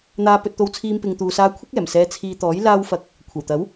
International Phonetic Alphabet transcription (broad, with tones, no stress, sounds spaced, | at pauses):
n̪ aː˧ p ɵ˧ t̚ t̪ o˧ w t͡sʰ iː˧ m p ɪ˨ ŋ t̪ uː˨ s aː˧ kʷʰ ɪ˥ k̚ ɛː˨˩ m s ɛː˧ t͡sʰ iː˧ t̪ ɔː˨˥ j l aː˧ w f ɐ˧ k̚ | kʷʰ ɐ˨˩ w t̪ ɐ˨˥ w